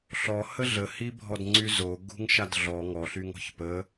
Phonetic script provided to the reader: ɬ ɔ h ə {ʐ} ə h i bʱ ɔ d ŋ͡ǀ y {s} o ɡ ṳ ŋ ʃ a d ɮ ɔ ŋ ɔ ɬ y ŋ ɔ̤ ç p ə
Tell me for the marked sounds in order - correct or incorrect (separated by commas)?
incorrect, incorrect